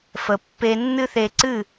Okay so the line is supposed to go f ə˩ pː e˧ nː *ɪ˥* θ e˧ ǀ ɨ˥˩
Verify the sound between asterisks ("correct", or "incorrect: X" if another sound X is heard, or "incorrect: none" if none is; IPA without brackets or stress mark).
incorrect: ɨ˥